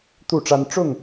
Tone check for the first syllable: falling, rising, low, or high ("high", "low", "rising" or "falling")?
falling